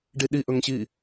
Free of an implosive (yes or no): no